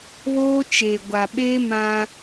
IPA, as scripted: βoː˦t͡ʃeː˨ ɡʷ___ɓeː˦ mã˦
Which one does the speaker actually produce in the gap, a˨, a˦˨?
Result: a˨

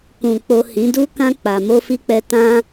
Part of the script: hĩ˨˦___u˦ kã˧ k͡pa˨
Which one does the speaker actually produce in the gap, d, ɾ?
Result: d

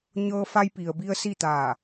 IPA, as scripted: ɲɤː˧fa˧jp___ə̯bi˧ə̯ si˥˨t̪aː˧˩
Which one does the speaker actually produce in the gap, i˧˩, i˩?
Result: i˩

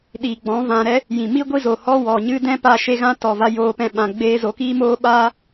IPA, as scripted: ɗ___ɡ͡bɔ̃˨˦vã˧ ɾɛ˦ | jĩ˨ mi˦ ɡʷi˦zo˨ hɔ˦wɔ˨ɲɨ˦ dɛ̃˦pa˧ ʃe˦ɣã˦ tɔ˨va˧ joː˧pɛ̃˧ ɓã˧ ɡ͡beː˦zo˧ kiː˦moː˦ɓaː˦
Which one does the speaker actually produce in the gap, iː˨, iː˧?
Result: iː˨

